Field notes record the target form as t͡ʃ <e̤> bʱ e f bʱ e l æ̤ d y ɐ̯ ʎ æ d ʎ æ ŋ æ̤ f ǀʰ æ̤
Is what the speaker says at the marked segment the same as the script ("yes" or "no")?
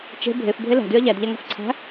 yes